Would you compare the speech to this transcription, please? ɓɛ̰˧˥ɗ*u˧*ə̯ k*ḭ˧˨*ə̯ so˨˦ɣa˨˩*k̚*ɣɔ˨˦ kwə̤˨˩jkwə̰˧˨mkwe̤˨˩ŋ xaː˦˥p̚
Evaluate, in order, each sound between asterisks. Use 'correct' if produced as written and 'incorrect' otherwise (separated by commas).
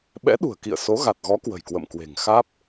incorrect, correct, incorrect